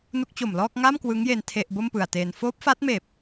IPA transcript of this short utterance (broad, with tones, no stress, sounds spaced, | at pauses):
n u˦˥ k̚ t͡ɕ o˨˩ m l ɔː˥˩ k̚ ŋ a˥˩ m k w ɯ˦˥ ŋ j e˧ n tʰ e˥˩ ʔ b o˥˩ m p ɯ˨˩ a̯ t eː˧ n f oː˦˥ p̚ f a˦˥ t̚ m eː˨˩ p̚